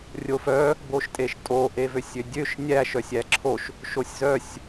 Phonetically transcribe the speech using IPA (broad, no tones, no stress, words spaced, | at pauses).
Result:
rʲofœ | boʃtʼeʃtʼo ʔevøsʲødʲøʃ nʲæ ʃœsʲæǁʰoʃ | ʃosʲzœsʲ